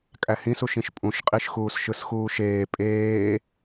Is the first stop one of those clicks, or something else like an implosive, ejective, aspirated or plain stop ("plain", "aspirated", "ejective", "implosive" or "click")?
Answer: ejective